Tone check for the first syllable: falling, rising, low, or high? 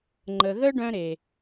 low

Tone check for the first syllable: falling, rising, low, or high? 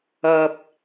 low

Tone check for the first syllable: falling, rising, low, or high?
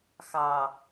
low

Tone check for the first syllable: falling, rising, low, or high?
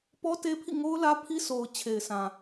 high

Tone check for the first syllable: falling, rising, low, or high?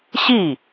falling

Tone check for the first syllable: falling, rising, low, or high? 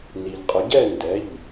low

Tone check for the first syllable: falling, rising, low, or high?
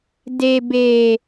low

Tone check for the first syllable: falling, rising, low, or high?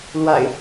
low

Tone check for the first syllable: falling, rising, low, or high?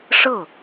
falling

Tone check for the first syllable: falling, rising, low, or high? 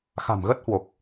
low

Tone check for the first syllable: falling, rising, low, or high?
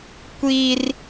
high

